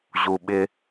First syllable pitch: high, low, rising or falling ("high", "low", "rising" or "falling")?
low